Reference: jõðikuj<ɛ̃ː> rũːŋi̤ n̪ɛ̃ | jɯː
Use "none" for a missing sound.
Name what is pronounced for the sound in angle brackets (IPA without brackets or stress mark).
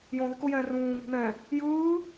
ɛ̃ː